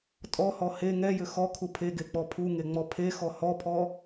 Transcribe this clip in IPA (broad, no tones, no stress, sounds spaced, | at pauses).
tʼ ɔ h ɔ h e ŋ ɛ j ʏ x ɔ kʰ u pʰ e ɡ e k͡p ɔ pʰ u ŋ e ŋ͡m ɔ pʰ e x ɔ h ɔ pʰ ɔ